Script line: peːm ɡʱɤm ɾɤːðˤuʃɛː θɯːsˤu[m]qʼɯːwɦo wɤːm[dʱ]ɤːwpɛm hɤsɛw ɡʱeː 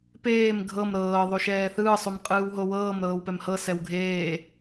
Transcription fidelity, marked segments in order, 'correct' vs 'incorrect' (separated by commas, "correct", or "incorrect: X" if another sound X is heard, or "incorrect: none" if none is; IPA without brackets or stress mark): correct, incorrect: ɾ